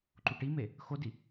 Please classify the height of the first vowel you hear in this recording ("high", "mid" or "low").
high